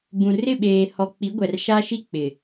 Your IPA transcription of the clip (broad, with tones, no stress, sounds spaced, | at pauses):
b ũ˨ r ɪ˦˨ ɓ eː˨ h ɔ˨ k͡p i˨˦ ɡʷ ɛ˨ r ʃ a˦ ʃ i˦ k͡p ɪ˨